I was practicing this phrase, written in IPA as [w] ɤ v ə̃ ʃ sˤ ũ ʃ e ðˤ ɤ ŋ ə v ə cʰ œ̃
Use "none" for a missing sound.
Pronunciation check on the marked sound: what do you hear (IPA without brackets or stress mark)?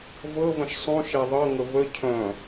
v